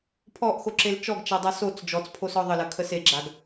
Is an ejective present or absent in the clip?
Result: absent